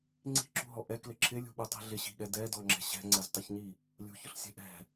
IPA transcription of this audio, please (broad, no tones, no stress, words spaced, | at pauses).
ŋ͡ǀi̤ǁṳɦɔ ʔɛklɪ ǁʰɪlʲṳɓutˤi̤ ɮɪɕi̤ɠɛ dɛdɔŋ͡ǁɛ̤ ɕɛ̤ŋ͡ǀɛztˤʊçɲi | lʲṳçʊɬsʲɛ̤ ʔɛ̤